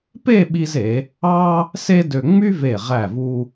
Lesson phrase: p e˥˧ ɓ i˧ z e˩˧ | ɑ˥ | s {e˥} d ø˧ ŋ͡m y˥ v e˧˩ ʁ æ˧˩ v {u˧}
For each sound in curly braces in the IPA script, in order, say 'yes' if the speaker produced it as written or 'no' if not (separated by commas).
yes, yes